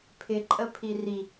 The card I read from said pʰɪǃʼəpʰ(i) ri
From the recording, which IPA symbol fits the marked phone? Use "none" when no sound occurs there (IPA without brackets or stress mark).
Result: i